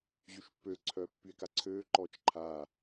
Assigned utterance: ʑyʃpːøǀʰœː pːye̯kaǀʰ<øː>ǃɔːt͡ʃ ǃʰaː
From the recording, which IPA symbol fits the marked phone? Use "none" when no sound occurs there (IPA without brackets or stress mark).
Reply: øː